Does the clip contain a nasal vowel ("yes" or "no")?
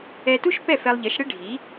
no